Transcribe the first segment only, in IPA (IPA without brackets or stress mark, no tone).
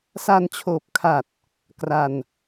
s